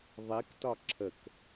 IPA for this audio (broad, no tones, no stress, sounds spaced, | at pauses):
ðˤ i k t ɒ ǁʰ ə k